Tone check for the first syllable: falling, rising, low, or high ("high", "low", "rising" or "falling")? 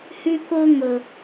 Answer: high